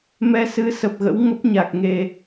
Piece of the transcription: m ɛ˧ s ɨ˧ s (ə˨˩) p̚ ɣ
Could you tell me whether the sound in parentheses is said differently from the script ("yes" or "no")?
no